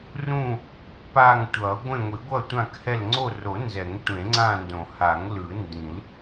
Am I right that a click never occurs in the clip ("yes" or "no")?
no